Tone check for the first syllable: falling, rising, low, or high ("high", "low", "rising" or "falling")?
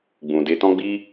low